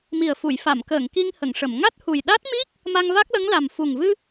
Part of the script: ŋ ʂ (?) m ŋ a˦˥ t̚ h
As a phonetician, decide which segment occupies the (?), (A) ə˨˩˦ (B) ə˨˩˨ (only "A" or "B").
B